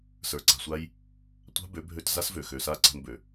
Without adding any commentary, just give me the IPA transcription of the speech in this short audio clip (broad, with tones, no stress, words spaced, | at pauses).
sə˞˨ǀa̤˨sʷa˦j | tʷa̤˦bø˨˦bʱø˧tza˦s vø˨xø˨sa˦˨ ǀa̤˧nbø˨